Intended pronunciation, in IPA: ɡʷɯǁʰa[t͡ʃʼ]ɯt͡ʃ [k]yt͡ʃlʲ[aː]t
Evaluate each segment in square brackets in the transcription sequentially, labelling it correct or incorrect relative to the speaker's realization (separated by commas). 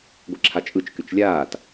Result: correct, correct, correct